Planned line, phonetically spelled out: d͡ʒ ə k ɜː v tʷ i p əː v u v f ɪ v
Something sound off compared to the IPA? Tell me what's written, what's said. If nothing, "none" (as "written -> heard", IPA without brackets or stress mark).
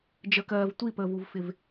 none